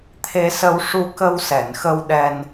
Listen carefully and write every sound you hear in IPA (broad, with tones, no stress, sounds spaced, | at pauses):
t̪ʰ e˧ s ə˧ w ʂ u˧ k ə˧ w s ɛ˨˩˨ n x ə˧ w ɗ ɛ˧ n